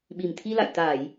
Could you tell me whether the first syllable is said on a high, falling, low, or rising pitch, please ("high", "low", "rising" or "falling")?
low